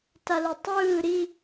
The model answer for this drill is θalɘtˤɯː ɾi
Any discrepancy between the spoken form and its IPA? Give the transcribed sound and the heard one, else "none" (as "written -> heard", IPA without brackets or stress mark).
θ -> t